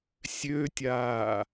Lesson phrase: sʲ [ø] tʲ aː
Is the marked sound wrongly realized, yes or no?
no